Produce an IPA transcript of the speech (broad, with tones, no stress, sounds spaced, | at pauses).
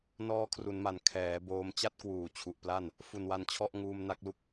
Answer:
n ɔː˦˥ kʰ r u˩˦ n m a˩˦ n kʰ ɛː˩˦ b oː˧ m t͡ɕ a˥˩ t̚ k w uː˨˩ t͡ɕʰ u˨˩ ʔ p l a˥˩ n | f u˨˩ n w a˧ n t͡ɕʰ ɔ˥˩ ʔ ŋ uː˧ m n a˦˥ k̚ l u˦˥ k̚